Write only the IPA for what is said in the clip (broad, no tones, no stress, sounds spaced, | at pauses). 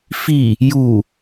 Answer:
f i | j u